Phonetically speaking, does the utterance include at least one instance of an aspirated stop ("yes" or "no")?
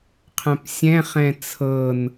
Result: yes